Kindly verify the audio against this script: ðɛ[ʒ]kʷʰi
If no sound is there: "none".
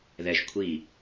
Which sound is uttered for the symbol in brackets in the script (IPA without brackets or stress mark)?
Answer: ʒ